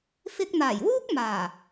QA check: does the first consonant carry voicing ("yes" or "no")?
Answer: no